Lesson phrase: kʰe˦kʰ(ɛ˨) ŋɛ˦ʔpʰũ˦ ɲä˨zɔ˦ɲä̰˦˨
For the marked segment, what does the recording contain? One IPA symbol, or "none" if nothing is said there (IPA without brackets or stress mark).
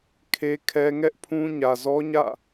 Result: ɛ˦